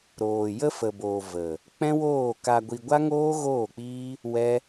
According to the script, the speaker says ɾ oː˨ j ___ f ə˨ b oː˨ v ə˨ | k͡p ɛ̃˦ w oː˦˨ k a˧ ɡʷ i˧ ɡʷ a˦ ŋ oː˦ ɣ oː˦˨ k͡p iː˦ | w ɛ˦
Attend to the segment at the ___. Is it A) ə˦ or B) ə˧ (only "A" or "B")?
A